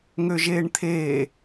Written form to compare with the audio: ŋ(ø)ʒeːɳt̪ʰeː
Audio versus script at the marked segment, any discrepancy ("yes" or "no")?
no